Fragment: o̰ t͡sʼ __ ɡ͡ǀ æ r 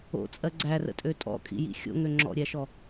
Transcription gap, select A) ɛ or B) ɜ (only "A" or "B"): B